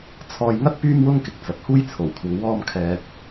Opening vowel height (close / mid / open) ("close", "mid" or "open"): mid